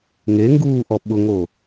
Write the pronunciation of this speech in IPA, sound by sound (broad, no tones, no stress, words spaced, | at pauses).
ŋeŋɡuːʔɔ ɓʊŋo